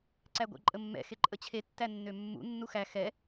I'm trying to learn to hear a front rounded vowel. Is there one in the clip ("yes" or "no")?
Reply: yes